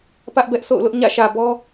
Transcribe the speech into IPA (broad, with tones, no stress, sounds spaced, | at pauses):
p ä˦ ʔ b ɛ˦ ʔ s o̰˦˨ ʊ̯ l ʊ˦ ʔ ɲ ä̰˦˨ ʃ ä˨ b ɔ˦